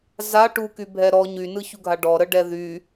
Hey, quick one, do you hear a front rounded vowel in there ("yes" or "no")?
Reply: yes